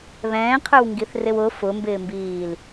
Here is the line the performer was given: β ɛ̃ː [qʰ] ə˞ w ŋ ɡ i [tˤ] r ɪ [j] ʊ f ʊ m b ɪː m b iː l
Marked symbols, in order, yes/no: yes, no, no

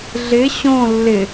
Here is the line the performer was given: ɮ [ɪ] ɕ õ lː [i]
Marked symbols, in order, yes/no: yes, no

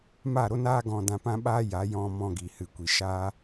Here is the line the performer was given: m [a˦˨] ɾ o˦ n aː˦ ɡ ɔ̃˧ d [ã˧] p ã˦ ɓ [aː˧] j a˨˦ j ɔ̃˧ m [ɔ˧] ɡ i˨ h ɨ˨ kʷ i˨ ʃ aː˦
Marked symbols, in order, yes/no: yes, yes, no, no

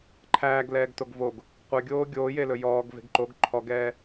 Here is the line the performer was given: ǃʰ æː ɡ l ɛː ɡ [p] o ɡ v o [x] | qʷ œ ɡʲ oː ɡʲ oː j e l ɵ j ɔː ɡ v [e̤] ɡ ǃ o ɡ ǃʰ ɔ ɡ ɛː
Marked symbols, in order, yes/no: no, no, yes

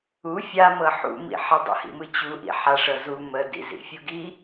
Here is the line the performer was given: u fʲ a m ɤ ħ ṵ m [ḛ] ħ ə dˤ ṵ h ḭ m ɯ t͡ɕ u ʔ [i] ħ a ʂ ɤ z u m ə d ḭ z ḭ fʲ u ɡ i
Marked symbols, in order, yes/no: no, no

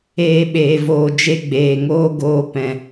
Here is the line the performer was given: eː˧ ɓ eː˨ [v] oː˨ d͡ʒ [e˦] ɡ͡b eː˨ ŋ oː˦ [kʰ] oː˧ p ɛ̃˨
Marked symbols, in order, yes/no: yes, yes, no

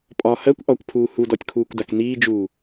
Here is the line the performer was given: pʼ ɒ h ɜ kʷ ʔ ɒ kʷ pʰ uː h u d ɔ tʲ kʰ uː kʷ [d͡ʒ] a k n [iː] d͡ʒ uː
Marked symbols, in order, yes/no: no, yes

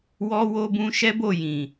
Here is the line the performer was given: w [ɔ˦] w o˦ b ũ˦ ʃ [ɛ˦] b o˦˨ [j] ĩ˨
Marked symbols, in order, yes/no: yes, yes, yes

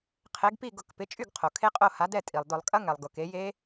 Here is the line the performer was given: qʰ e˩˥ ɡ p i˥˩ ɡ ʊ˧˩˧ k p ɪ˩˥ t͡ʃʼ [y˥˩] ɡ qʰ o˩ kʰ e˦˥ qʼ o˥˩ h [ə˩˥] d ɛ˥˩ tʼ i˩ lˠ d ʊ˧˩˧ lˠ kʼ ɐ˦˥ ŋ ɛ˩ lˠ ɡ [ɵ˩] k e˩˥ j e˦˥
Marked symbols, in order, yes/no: yes, no, no

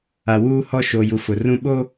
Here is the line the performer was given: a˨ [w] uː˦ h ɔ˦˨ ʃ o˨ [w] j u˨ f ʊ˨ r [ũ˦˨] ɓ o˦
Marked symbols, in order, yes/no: yes, no, yes

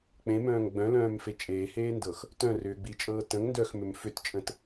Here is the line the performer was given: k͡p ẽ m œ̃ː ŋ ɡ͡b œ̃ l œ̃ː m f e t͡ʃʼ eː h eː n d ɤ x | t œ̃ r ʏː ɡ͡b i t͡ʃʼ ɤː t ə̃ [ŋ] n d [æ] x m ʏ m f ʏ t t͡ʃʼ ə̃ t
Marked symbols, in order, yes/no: yes, no

